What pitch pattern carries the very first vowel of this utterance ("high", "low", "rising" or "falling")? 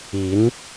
rising